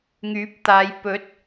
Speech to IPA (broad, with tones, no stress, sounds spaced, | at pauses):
ŋ yː˨˥ p̚ t̪ aː˨˧ j p ɵ˨˥ t̚